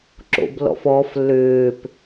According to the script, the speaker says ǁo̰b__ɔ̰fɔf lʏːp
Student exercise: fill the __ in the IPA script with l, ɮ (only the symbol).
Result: l